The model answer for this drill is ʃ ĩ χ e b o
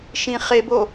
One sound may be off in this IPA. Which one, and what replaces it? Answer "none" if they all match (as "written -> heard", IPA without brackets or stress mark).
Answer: none